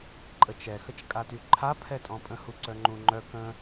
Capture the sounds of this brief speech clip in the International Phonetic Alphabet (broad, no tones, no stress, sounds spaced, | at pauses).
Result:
ǃʼ ə t͡ʃ ɛ x ə t͡ʃ kʼ a t y ǃʰ a pʰ ɛ tʼ ɔ̃ pʼ ə̃ h u ǀ œ ŋ͡ǃ ũ ŋ͡ǃ œ k ə̃